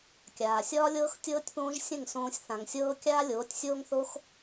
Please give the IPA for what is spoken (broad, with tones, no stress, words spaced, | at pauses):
kʲaː˨sʲɒː˦lʲɤː˦x tʲɤː˦tʲpõː˦ʒsʲə̃˦˨ŋsõː˧sʲ θã˨ŋsʲɤː˦ kʲaː˦lʲoː˨˦tʲsʲoː˦ŋθo˦x